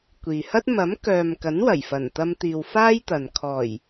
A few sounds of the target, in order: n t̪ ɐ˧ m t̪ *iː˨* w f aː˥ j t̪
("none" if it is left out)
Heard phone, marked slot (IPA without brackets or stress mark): iː˨